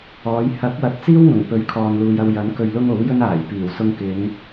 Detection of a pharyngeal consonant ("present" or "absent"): absent